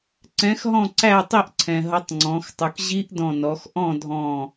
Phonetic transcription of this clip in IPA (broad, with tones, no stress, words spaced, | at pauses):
ǀɛ̃˨˥xɦɔ̃˥˨ǀæ˥˨tˤi˥˨ʔ ǀʰɛ̃˩ɦʌ˨˥tˤŋ͡ǀɔ̃˩˧xtˤu˩k ʑi˦˥ʔ dɔ̃˧˩nɔ˩˧x ʔɔ̃˥˨dʱɔ̃˧˩